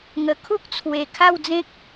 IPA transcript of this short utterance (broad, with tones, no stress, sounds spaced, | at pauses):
ŋ ə˨˩ kʰ u˦ k̚ t͡sʰ w e˨˩ kʰ a˥˧ w d͡z ẽ˦ k̚